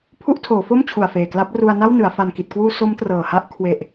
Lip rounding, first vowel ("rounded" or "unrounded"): rounded